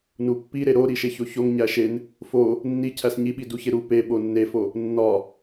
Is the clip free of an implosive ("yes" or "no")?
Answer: no